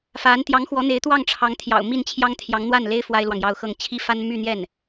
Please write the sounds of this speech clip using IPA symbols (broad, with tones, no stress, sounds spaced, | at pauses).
f a˧˥ n t̪ j ɑ˧˥ ŋ x w ɔ˧˥ n̪ e˧˥ ɪ̯ t̪ w ɑ˥˩ ŋ ʈ͡ʂʰ ɑ˧˥ ŋ t̪ʰ j ɑ̰˨˩ ʊ̯ m i˥˩ n t͡ɕʰ j ɑ˥ ŋ t̪ʰ j ɑ˧˥ ŋ n̪ w a˥˩ n l e˥ ɪ̯ f w a˥ ɪ̯ l w ɑ˨ ŋ j ɑ˥˧ ʊ̯ x ɤ˥˩ ŋ t͡ɕʰ i˥ f a˥ n m y˥˧ n̪ j ɛ˥˩ n